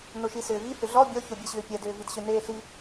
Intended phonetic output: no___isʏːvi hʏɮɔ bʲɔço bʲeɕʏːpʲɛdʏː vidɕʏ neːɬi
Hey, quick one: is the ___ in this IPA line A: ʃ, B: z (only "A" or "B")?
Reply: A